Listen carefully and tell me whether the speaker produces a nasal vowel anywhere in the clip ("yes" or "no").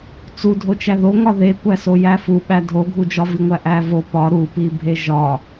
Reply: no